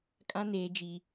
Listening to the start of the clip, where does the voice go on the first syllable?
high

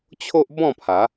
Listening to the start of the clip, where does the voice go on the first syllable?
high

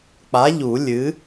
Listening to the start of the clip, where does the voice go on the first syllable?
rising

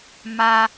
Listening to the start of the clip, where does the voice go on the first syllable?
high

